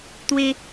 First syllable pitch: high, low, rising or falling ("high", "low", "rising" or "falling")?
high